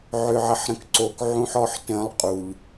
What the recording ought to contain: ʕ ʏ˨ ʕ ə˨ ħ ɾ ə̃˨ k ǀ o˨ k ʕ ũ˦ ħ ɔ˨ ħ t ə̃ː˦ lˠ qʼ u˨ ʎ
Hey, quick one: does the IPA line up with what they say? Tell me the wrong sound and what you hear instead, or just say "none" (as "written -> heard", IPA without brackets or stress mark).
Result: none